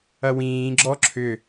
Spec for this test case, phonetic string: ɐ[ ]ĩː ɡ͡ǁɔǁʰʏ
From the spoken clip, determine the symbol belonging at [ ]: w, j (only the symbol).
w